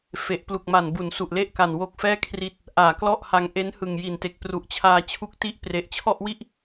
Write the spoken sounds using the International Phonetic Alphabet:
f e˨˩ ʔ p l u˨˩ k̚ m a˨˩ n b u˩˦ n s u˨˩ ʔ l e˥˩ ʔ k a˨˩ n w o˦˥ k̚ f ɛː˥˩ kʰ r i˦˥ t̚ | ʔ aː˨˩ k l ɔ˥˩ ʔ h a˧ ŋ ʔ e˦˥ n h ɯ˨˩ ŋ j i˨˩ n t e˨˩ k̚ p r u˨˩ ʔ t͡ɕʰ aː˧ t͡ɕʰ u˦˥ k̚ t i˥˩ ʔ p r e˨˩ ʔ t͡ɕʰ ɔ˥˩ ʔ w i˥˩ ʔ

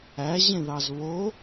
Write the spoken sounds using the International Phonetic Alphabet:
æ ʑ ẽ ð ɑ z β o

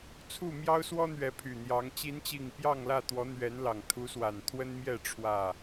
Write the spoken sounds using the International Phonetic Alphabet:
t͡sʰ u˥˨ m j ɑ˦ ʊ̯ s w ɔ˦ n̪ ɥ ɛ˨˦ pʰ y˨˩ n̪ j ɑ˨˦ ŋ t͡ɕ i˨˦ n t͡ɕ i˨˩ ŋ p j ɑ˥˨ ŋ l ä˥˨ t̪ w ɔ˨˦ n̪ ɥ ɛ˨˦ n l ɑ˨˩ ŋ t̪ʰ u˨˦ s w a˨˩ n t̪ʰ w ə˦ n m j ɛ˥˨ ʈ͡ʂʰ w ä˥˨

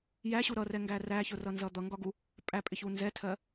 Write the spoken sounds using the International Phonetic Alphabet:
j æ ɕ u ɾ ʌ r ɛ ŋ ɡ æ r æ ç ʊ r ʌ n z ʌ d̪ ʌ ŋ ɡ ɒ ɡ u | pʼ æ pʼ ɪ ç u n z ɛ tʰ ɜ

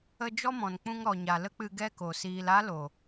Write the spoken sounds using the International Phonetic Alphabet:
ə˦ d͡ʒ ɔ˦ m ɔ̃˨ n k͡p ũ˧ ŋ ɾ ɔ˨ ɲ a˨ l ə˦ k͡p ɨ˧ ɡ ɛ˦ k o˨ s iː˧ l a˦ l o˨

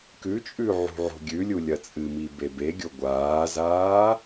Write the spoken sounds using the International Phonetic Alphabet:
k ʉ t͡ʃʼ ʉ ʕ ṳ ʕ o̤ ɡʲ ʉ lʲ u lʲ ɐ t͡sʼ ɨ m i b e b e ɡʲ o ɡʷ aː z aː

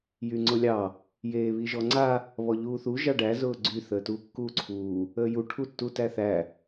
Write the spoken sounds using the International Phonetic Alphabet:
j y ŋ͡ǀ ʊ lʲ ɑ | j eː β i ʒ ɔ ŋ͡ǀ a | β ɔ ʎ uː θ u ʒ ɑ ɖ æ z ʊː ɡ͡ǀ y θ əː t uː kː uː ǀʰ uː | əː j u ʈʰ u tː u t æ θ æ

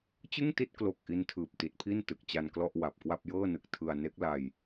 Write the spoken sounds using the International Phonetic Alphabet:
t͡ɕ ɯ˥˩ ŋ t i˥˩ t̚ k l o˨˩ k̚ ʔ i˧ n tʰ ɯː˨˩ p̚ t i˨˩ t̚ pʰ i˥˩ n t ɯ˨˩ k̚ t͡ɕ a˧ n k l ɔ˥˩ ʔ w a˨˩ p̚ k w a˥˩ p̚ j ɤː˥˩ n ɯ˨˩ k̚ tʰ ɯ˧ a̯ n e˦˥ k̚ l a˧ j

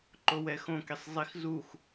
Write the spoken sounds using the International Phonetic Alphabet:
ǃ o w ɛ x õ k i sˤ zˤ i x z u x

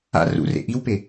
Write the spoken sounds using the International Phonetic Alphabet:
a̰ r ṵ r ḛ ʔ i w p e

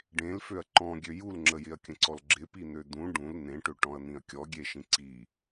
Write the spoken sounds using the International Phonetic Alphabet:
ɖ ẽ l f ø ɐ̯ ǃ ɔ̃ ɡʲ ø j u l ŋ͡ǁ ə j ɪ ɐ̯ kʲ ə̃ ǀ ɔ l ɡ͡ǁ ɪ p i n̪ ø d̪ ũ ɖ ũ l n̪ ẽ ʈ ø ʈ ɔ̃ ɐ̯ n̪ ĩ ɐ̯ kʲ ɔ ɡʲ e ʃ ĩ ǀ i

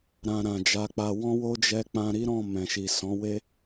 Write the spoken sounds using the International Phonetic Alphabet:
ɾ ã˧ ɾ ã˨ d͡ʒ a˨˦ k͡p a˧ w ɔ̃˦ w o˦ d͡ʒ ɛ˧ k͡p ã˧ ɾ i˦ ɾ ɔ̃˦˨ m ɛ̃˨ ʃ i˨ s ɔ̃˨˦ w e˦

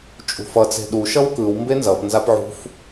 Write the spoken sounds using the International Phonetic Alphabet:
t͡ʃʼ ṳ f ʌ t͡s e̤ ɗ u ʃ ʌ w k ɯ w m b e n z ʌ p n z a p ʕ ṳ f

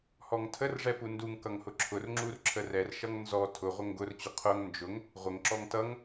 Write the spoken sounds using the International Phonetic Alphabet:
h ɔ ŋ tʰ ə r ʐ ɛ p u n d u ŋ k ʌ ŋ h ʊ ǁʰ ʊ r ŋ͡ǁ u r ǁʰ ə r ɛ r ʃ ʌ ŋ n z ɔ tʰ ʊ ʁʷ ə ŋ ɡ ʊ r t͡ɕ ʊ qʰ ʊ ŋ n d͡ʒ ʊ ŋ | ʁʷ ə ŋ ǁ ɔ ŋ t ʌ ŋ

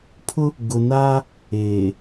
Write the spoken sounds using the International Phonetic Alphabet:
pʰ ʊ˦ | ɡ ʊ˨ n aː˦ | eː˨

